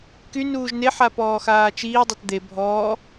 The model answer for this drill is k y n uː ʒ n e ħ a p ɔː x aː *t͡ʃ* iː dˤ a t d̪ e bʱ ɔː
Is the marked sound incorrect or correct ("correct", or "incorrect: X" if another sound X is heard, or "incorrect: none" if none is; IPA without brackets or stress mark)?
correct